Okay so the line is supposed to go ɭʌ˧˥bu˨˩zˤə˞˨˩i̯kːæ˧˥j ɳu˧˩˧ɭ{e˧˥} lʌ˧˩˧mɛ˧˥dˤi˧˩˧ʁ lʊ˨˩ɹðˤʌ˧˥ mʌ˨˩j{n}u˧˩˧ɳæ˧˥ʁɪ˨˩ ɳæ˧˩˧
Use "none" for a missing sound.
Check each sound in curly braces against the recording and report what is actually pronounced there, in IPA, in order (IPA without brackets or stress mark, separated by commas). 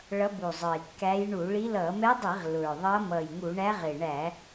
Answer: i˧˥, ŋ